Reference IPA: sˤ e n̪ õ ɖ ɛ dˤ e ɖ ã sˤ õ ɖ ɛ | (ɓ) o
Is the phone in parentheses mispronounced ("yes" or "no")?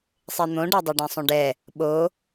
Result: no